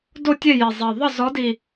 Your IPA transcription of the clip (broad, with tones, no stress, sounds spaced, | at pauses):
d o˥˨ tʲ e˥˨ j i˨˩ zˤ e˨˩ ðˤ ə˥˨ z ɔ˨˦ d i˨˩